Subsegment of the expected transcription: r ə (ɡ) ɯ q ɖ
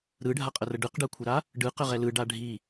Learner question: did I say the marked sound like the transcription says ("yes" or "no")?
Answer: no